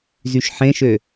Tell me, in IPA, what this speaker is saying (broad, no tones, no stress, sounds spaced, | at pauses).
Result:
z y ʃ ħ ẽ ʃ ø